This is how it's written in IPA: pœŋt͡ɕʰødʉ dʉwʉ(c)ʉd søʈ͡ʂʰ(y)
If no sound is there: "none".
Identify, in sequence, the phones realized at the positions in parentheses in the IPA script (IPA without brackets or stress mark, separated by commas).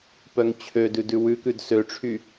k, y